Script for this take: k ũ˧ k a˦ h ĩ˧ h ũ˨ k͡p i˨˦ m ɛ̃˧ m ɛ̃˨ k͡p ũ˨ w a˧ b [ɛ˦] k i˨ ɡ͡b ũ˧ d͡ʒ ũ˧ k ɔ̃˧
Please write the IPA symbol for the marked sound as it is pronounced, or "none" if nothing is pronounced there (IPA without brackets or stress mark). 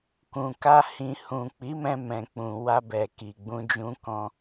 ɛ˨